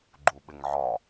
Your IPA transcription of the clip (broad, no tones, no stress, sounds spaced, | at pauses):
ɡ͡ǃ u ɓ ɪ ŋ ʕ ɒ